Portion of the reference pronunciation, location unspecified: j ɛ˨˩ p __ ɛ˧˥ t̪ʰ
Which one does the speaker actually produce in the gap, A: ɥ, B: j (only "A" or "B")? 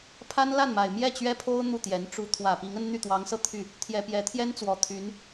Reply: B